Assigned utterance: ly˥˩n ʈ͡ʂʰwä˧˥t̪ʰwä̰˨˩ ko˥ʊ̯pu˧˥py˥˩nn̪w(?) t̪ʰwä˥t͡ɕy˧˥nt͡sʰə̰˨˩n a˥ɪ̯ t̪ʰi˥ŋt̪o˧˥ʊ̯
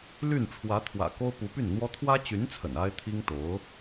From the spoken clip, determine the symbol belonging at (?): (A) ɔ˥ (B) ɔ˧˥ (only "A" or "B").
A